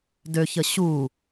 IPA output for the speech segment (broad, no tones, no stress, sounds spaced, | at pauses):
d ø ç ə ɕ u